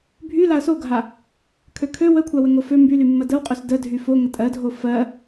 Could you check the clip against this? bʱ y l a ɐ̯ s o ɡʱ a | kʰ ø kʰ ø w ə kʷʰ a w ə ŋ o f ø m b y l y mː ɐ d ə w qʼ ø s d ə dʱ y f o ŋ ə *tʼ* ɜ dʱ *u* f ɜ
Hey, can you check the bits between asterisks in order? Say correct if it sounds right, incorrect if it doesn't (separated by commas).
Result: correct, incorrect